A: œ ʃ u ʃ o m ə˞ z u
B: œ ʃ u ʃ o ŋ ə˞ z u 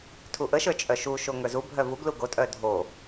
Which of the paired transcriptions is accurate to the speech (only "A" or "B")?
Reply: B